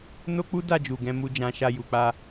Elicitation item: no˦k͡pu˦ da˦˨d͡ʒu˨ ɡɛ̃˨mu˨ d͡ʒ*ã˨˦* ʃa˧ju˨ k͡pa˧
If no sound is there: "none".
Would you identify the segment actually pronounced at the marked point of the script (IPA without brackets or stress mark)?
ã˨˦